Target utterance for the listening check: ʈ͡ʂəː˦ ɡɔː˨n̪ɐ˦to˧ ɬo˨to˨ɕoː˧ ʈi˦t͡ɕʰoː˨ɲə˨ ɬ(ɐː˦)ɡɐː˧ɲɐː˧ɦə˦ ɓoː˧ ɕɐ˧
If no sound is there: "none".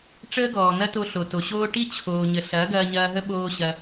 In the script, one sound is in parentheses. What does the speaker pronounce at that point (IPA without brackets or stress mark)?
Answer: ɐː˨˦